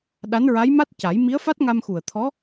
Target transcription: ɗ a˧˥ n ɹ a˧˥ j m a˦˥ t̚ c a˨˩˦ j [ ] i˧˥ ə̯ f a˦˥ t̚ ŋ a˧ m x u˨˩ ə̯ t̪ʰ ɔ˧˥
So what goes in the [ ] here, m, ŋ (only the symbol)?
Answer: m